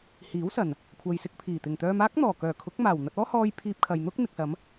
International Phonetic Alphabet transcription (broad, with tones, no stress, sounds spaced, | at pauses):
h iː˨˥ w s ɐ˨˩ n | kʷʰ ɐ˨ j s ɪ˧ k̚ pʰ iː˨˩ t̪ ɪ˨˩ ŋ t̪ œː˧ m aː˥ k̚ n̪ ɔː˨˩ k œː˨˩ kʰ ʊ˨˥ k̚ m aː˨˩ w n̪ ɐ˧ t̚ ɔː˥ h ɔː˧ j pʰ iː˧ p̚ kʰ ɐ˨ j n̪ ʊ˥ k̚ n̪ ɪ˨ k̚ s ɐ˨˧ m